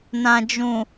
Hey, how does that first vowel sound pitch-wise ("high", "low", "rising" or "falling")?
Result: low